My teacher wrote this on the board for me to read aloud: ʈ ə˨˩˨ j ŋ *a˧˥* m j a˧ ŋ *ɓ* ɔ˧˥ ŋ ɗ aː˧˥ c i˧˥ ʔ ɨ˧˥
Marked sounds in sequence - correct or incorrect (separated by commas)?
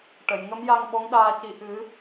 incorrect, correct